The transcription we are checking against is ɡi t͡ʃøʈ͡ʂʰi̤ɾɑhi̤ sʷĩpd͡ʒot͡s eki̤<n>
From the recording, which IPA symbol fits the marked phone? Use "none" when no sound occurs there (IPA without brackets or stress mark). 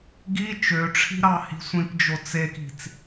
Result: t͡s